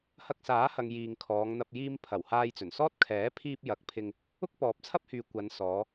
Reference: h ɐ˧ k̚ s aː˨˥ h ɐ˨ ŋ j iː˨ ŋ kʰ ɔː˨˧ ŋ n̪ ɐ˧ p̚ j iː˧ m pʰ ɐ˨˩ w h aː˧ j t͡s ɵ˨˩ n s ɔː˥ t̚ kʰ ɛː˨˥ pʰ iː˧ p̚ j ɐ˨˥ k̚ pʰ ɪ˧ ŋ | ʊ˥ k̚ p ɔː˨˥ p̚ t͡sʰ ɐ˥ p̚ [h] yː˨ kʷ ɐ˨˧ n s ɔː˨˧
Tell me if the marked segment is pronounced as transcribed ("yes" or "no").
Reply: yes